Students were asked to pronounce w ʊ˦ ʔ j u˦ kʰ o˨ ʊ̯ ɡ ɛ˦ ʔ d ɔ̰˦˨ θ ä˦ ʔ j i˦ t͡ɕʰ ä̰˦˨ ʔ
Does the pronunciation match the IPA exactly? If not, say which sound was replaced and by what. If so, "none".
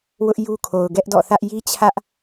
ä̰˦˨ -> ä˦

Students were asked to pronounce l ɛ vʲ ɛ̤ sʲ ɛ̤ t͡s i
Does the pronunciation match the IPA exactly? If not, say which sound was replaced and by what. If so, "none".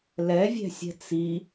none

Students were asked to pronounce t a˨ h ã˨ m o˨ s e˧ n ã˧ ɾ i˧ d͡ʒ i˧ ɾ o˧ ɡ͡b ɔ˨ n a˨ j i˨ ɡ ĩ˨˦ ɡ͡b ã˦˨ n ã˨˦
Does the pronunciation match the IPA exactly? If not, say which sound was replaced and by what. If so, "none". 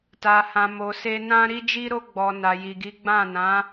ĩ˨˦ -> i˨˦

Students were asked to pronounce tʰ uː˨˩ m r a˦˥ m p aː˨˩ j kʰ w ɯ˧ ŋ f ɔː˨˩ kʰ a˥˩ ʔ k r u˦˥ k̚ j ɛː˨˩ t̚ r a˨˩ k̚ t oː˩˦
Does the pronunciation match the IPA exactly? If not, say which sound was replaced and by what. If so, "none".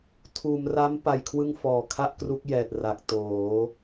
aː˨˩ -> a˨˩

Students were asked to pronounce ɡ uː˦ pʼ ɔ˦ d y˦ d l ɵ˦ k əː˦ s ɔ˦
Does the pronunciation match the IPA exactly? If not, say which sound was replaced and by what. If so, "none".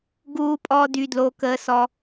ɵ˦ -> o˦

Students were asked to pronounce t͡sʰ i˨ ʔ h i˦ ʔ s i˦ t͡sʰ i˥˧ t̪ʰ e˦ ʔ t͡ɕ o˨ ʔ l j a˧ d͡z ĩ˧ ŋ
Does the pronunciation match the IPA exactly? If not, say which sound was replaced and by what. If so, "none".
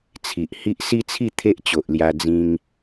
none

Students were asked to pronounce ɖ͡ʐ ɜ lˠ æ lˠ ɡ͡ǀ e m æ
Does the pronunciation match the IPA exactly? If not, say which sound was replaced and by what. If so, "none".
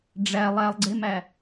ɜ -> æ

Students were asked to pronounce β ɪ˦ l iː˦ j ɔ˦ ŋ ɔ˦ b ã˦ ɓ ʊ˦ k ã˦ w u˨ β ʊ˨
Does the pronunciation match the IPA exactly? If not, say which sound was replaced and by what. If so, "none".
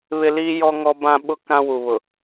none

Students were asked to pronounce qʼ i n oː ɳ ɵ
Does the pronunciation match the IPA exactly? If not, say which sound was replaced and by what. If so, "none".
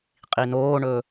none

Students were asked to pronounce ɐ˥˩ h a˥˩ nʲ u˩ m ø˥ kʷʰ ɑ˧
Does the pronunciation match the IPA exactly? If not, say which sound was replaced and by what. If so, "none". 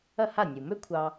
none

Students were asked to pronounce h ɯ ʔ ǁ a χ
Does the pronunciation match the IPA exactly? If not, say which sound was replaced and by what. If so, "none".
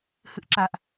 χ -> ʔ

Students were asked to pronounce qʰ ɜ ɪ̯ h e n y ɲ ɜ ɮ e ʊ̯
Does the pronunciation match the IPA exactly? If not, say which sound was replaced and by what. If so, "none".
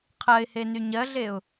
none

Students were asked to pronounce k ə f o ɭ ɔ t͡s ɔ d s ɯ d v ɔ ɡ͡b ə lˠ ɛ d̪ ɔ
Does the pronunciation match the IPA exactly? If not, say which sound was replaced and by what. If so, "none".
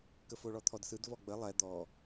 t͡s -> t̪ʰ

